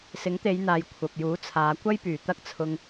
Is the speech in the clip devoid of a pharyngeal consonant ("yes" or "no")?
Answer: yes